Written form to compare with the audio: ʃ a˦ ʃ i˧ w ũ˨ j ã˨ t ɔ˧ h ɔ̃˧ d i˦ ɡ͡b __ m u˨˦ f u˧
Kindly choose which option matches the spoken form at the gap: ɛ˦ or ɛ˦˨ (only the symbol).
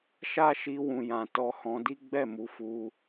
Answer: ɛ˦˨